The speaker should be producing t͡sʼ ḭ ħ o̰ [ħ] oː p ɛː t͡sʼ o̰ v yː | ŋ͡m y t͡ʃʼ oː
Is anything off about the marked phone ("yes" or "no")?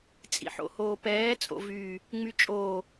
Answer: yes